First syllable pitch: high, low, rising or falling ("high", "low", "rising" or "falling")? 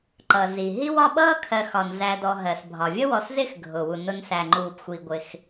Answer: low